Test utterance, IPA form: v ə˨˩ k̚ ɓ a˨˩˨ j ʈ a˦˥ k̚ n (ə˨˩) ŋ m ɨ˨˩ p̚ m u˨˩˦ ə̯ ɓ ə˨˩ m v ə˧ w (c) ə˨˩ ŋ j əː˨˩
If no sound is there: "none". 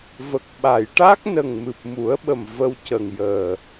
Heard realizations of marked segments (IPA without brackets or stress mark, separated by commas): ə˨˩, c